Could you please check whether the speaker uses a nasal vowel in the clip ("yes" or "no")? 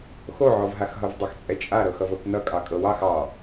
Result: no